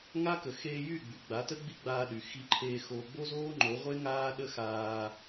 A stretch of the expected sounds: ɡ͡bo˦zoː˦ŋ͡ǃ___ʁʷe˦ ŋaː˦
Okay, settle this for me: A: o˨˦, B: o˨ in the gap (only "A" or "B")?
A